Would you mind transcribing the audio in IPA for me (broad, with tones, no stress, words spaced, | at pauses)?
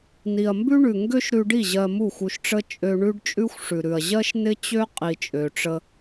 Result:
ni˨ɐ̯mbʉ˦ɳʉ˨ ŋɡø˦ʃɾʉ˧ɖi˦˨ ʑɜ˧mu˦˨xʷu˧ʃʈ͡ʂə˦ t͡ʃʼø˧ɳʉ˦ɖ t͡ʃʼʉ˦xʷʂʉ˨ɾʉ˨ɐ̯ ʑɜ˦ʃnɪ˦t͡ɕø˦ qʼi˧t͡ʃʼø˧ʈ͡ʂə˦